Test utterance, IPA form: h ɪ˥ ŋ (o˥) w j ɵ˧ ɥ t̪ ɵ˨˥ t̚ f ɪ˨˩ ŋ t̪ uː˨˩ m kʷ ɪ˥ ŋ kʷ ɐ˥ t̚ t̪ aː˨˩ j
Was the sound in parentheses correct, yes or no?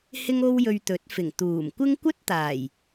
yes